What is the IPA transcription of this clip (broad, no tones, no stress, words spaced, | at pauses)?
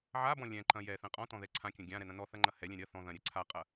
ʕabɔ̃ lʲɛ̃ǃɐ̃ jɛθɛ̃ qʼɔ̃tɔ̃ðɛ ǀʰãkʲɐ̃ ɡʲãɾɛnɐ̃ nɔθɐŋ͡ǃɐ hɛlʲɛ̃ ɾʲɐ θɔ̃ ðɐ̃ɾʲɛ ǀʰaqʼɐ